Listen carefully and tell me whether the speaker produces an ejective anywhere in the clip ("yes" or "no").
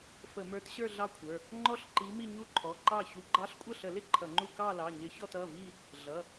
yes